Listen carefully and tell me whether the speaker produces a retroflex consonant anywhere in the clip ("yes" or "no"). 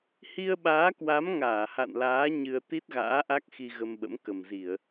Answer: no